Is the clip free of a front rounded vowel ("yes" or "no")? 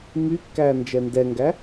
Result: no